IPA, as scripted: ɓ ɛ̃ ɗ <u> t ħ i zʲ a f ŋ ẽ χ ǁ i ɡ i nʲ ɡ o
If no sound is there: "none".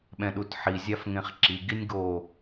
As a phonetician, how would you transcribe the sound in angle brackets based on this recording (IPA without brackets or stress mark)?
u